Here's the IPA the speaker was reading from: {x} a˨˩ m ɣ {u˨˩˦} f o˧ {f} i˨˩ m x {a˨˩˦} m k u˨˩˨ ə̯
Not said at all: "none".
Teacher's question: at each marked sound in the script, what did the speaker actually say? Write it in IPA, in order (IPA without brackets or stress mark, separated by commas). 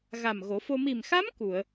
ɣ, o˨˩˦, m, a˧˥